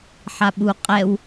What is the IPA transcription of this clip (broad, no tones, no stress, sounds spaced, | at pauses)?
ħ a ɓ u qʼ ɛ w